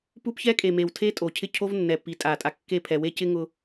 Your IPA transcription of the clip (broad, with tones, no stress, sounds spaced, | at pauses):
p u˦ p ç ɛ˦ kʼ e˨ m e˨ w tʰ e˦ tʼ o˨ cʰ ɪ˦ cʰ o˦ v nː ɛ˨ p i˨˦ tʼ a˨ tʼ a˨ kː e˦˨ pʰ ɛ˨ w e˦ c ɪ˦ ŋ ʊ˦